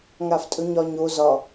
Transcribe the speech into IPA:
ŋ a f tʼ ɵ ɲ ɒ ɲ o z ɒ

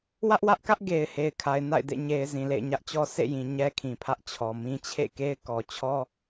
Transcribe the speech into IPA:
w ä˦ ʔ w ä˦ ʔ k ä˦ ʔ ɡ e˨ ɪ̯ h e˨ ɪ̯ kʰ a˨ ɪ̯ n a̰˦˨ ɪ̯ d ḛ˦˨ ɲ e˨ ɪ̯ z ĩ˨ l ḛ˦˨ ɪ̯ ɲ ä˦ ʔ t͡ɕ ɔ˦ sʰ ḛ˦˨ j ĩ˨ ɲ ɛ˦ kʰ ĩ˨ pʰ ä˦ ʔ t͡ɕʰ ɔ˨ m ĩ˦ t͡ɕʰ ḛ˦˨ k e˦ ɪ̯ k ɔ˨ t͡ɕʰ ɔ˦

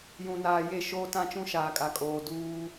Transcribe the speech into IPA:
j ũ˨ n aː˨ j e˦˨ ʃ oː˦ t ã˦ t͡ʃ ũ˦ ʃ aː˨ kʼ a˨ kʼ oː˨ d uː˦

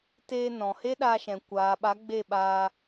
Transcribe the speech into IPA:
t eː˧ n ɔ̃˨ h e˦ ɗ aː˧ ʃ ɛ̃˨ kʷ aː˨ ɓ a˨˦ ɡ͡b e˦˨ ɓ aː˧

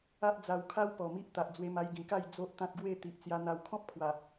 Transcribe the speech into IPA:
a˦ ʔ d͡z a˧ w kʰ a˦ w p ɔ˨˩ m i˦ ʔ t̪ a˨ ʔ d͡z w e˧ m a˧ j ɡ ĩ˨˩ k a˥˧ j d͡z o˦ ʔ t̪ ã˦ t̚ ɡ w e˥˧ t̪ i˨ ʔ t͡s j a˧ n̪ a˧ w kʰ ɔ̃˦ p̚ kʰ w a˨˩

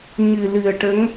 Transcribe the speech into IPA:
ɲ ɨ˨˩ l ɨ˨˩ ə̯ ʈ ə˧˥ ŋ

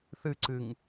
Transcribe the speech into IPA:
θ ɨ ǀ ɨ ŋ

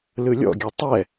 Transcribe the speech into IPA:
l ɯ lʲ ɔ̰ ɡʲ ø tˤ ɛ

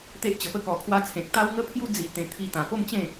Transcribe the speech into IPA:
t̪ e˦ ʔ t͡ɕ ə˧ p ə˥˧ k ɔ˧ kʰ w a˦ t͡sʰ ẽ˨ k̚ t̪ a˦ w ŋ ə˥˧ pʰ j u˦ d͡z i˧ t̪ ẽ˧ t̪ʰ i˦ t̪ ã˧ p o˥˧ m t͡ɕ ẽ˥˧

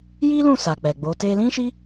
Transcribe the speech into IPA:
j i˦ l ũ˦˨ s a˨ k͡p ɛ˨ ɡ͡b o˨˦ t e˧ l ĩ˦ ʃ i˦

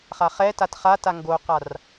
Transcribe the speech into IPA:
χ a χ ɛ t a t χ a t a ŋ ɡ o q a r

